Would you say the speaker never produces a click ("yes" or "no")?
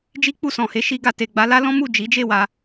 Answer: yes